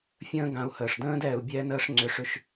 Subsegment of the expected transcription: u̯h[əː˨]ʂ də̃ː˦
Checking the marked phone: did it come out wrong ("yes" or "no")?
no